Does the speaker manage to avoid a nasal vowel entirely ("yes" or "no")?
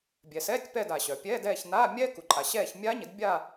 yes